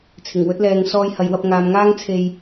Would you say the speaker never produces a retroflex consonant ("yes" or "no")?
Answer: yes